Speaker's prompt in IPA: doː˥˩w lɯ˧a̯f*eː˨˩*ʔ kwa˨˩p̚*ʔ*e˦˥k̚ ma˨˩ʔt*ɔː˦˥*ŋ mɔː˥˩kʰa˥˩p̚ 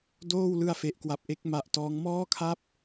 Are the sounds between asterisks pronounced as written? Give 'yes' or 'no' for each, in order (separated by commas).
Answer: no, yes, yes